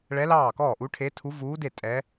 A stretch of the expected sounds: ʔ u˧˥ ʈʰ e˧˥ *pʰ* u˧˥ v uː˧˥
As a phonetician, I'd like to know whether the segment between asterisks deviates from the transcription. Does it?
yes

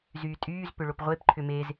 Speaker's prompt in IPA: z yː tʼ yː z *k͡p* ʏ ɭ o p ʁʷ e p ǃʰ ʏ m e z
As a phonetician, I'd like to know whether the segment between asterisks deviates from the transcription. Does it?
yes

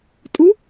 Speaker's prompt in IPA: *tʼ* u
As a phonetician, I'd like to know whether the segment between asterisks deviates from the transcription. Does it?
no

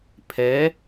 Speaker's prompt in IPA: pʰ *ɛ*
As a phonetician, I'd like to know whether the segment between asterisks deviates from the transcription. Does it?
no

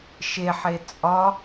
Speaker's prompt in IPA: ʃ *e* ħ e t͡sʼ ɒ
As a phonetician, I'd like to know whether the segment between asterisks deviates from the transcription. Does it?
no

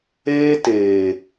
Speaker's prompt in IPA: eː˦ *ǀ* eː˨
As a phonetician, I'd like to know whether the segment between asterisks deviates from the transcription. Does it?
yes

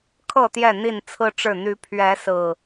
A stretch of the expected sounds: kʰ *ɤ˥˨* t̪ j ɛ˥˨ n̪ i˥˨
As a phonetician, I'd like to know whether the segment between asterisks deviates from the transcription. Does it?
no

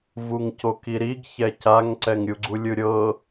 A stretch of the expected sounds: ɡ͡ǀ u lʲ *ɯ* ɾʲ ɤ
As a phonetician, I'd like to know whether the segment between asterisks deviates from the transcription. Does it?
no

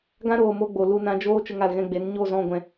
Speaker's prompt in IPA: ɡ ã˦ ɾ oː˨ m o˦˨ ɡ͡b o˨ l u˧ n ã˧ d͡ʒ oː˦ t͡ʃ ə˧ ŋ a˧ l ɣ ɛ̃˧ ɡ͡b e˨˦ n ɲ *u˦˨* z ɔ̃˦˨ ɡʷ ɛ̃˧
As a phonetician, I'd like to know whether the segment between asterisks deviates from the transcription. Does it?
yes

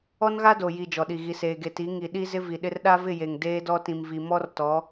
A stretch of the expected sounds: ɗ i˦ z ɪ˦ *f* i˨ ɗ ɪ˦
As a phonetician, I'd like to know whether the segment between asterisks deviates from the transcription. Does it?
yes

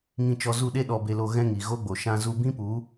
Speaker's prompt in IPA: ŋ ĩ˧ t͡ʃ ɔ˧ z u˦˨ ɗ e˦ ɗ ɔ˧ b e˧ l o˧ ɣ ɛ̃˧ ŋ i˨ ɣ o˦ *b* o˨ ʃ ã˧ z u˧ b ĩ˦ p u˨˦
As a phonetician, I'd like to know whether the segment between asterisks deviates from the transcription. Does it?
yes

